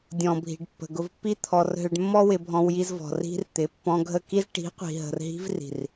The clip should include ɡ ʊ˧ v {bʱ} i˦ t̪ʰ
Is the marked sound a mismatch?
yes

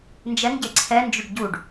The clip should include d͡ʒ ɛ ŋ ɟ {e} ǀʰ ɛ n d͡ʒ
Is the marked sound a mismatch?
no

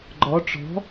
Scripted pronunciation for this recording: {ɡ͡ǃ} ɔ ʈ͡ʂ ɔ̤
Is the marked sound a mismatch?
no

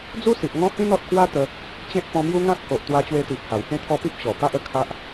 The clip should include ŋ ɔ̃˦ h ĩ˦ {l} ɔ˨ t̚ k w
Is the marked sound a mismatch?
yes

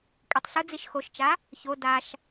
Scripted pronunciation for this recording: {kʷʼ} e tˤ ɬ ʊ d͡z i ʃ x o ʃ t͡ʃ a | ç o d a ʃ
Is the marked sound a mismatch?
no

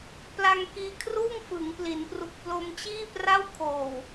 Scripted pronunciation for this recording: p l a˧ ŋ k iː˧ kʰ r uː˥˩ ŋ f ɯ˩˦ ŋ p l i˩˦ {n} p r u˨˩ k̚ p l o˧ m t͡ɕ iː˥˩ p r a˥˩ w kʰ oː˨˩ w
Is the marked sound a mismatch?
no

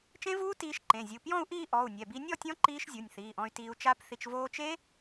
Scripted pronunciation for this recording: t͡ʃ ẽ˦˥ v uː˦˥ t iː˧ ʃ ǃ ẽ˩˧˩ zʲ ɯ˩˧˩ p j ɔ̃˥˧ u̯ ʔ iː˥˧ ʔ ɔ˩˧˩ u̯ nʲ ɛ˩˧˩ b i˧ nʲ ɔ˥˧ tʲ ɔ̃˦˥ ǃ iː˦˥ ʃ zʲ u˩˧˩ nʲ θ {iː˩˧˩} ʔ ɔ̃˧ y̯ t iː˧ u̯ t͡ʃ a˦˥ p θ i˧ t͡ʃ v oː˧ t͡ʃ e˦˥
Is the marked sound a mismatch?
no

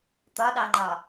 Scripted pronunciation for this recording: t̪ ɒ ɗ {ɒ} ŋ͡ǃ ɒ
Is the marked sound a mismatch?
yes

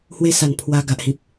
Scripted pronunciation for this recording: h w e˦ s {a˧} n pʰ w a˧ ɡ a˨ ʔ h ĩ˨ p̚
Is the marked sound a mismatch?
yes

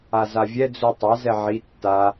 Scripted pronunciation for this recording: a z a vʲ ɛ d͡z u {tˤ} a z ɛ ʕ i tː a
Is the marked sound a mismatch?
no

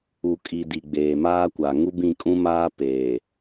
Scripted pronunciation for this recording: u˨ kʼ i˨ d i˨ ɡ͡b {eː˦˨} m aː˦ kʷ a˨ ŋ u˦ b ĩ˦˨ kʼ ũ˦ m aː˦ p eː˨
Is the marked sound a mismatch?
yes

